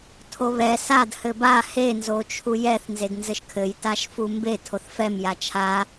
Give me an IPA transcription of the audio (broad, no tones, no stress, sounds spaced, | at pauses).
tʰ o β ɛ s a d h ɘ b a h e n z o t͡ʃʰ u j ɛ θ n z e d n z ɘ ʃ kʰ ɘ j t a ʃ f u m b e tʰ o θ f ɛ m j a t͡ʃʰ a